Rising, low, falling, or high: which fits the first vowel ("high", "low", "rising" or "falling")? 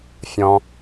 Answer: low